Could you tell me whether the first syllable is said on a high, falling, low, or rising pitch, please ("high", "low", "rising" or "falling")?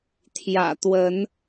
low